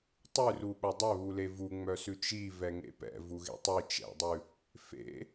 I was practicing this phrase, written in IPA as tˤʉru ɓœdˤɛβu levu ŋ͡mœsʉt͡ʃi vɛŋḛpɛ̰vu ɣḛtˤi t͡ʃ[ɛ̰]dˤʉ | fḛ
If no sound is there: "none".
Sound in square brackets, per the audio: ɛ̰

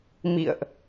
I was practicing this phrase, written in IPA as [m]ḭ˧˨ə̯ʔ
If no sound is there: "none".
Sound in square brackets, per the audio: m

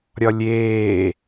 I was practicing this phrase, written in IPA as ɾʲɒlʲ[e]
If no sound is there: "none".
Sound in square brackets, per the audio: eː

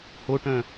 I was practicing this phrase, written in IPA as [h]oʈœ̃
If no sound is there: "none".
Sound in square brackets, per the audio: h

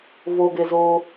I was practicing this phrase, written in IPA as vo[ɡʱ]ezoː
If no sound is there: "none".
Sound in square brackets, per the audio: ɡ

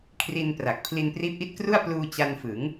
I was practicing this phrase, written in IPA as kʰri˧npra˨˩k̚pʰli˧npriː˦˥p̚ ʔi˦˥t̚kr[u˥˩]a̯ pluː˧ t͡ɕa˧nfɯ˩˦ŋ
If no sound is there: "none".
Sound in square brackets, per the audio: u˥˩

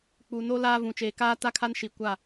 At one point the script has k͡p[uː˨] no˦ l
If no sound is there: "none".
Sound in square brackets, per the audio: u˨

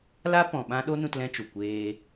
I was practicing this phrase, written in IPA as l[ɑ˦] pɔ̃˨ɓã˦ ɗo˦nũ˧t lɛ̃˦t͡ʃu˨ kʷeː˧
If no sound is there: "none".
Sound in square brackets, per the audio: a˦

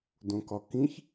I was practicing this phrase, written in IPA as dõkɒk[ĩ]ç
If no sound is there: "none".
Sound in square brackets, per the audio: ĩ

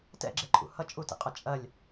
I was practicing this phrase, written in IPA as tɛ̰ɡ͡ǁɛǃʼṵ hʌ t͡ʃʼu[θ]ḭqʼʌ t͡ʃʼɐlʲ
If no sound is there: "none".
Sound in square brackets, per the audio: t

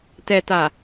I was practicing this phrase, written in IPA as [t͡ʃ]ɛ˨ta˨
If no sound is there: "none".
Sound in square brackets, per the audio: t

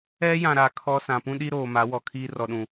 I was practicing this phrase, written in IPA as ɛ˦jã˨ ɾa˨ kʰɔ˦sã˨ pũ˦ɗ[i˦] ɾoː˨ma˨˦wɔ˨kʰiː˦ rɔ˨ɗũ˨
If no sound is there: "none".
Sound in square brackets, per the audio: i˦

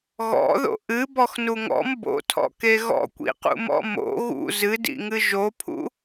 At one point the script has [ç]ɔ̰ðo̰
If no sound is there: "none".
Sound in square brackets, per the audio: ɣ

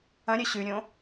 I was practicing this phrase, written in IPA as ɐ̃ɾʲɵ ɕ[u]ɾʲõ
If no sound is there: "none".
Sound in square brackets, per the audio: ʉ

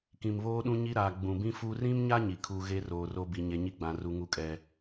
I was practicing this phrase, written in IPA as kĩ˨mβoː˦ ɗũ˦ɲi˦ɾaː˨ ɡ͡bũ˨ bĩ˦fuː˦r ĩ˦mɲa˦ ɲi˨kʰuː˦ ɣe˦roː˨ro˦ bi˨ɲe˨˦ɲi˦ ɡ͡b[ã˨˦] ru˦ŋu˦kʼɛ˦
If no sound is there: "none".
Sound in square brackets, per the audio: ã˨˦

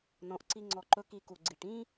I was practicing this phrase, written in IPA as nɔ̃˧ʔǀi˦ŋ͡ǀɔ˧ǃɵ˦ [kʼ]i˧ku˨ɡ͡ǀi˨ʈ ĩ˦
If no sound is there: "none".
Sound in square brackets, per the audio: k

